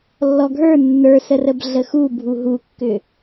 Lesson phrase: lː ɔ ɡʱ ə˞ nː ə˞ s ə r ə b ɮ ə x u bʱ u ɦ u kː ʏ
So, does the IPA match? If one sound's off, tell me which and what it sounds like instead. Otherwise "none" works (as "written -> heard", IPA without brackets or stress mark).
none